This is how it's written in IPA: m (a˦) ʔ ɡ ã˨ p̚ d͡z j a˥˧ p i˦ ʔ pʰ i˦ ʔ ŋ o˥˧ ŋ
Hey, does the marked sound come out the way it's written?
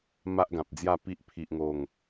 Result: yes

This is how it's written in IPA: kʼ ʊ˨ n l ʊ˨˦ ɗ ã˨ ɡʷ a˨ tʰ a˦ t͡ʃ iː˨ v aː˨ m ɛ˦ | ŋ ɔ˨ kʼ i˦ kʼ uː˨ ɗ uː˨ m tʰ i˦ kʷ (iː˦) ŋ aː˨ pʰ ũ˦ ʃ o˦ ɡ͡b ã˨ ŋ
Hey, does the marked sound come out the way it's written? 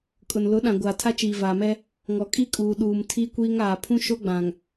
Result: yes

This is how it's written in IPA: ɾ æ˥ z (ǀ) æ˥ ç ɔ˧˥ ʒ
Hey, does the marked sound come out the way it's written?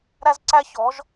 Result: yes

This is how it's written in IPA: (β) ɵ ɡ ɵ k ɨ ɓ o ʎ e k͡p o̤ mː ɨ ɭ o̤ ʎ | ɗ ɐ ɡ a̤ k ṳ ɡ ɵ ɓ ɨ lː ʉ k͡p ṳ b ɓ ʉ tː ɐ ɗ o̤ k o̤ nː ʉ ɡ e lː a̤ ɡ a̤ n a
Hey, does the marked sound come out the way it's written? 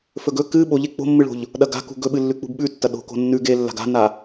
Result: no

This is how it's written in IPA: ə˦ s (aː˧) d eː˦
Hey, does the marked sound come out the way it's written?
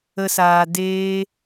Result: yes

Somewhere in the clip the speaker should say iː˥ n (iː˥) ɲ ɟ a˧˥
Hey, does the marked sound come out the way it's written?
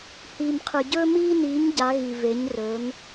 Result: no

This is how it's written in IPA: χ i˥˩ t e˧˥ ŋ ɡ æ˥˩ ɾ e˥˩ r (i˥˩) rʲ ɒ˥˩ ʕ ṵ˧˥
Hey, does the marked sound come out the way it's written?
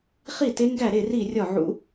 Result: yes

